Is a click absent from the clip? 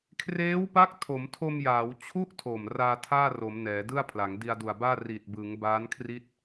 yes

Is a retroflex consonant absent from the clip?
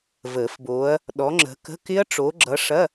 no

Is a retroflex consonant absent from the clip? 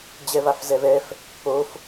yes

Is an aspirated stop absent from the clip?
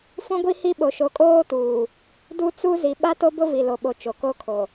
no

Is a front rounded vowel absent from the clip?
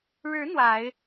yes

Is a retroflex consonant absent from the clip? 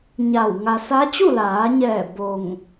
yes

